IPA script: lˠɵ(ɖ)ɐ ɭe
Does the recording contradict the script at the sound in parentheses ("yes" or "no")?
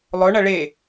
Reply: yes